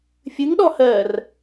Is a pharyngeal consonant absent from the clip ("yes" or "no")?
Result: yes